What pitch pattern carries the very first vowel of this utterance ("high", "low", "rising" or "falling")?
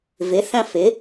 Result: rising